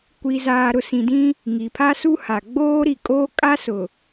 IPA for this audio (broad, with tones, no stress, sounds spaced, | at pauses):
kʷ i˨ z aː˨ ɾ ʊ˨ s ĩ˨ d ĩ˦ | ŋ i˨ pʰ a˦ s u˦ h a˨ ɡ͡b oː˦ ɾ i˨ kʼ oː˦ kʼ a˦ s ʊ˨